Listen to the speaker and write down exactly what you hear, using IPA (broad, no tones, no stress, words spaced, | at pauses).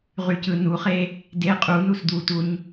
ʁycɯnuχe | de qʼu nusd̪utuɲ